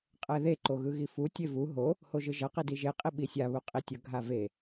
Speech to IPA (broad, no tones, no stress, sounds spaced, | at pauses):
qʼ ɛ ð e ǃ o ɣ ɯ ɣ i f u tʲ e v u ɦ o | h o ʒ ɯ ʒ ʌ q i d i ʒ e qʼ i ɓ i sʲ a β u qʼ i tʲ ʌ ɡʱ a v e